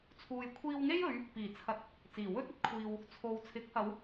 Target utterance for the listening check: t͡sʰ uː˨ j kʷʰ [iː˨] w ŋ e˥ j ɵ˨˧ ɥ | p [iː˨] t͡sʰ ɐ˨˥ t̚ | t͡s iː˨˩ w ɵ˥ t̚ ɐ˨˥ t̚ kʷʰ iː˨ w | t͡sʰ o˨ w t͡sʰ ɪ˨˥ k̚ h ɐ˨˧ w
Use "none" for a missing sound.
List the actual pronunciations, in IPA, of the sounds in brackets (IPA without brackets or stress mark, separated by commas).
iː˧, iː˨˩